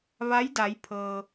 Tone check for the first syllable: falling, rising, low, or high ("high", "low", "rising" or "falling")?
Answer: rising